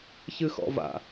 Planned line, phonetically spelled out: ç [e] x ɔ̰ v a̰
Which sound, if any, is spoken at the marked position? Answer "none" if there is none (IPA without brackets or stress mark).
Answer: ɨ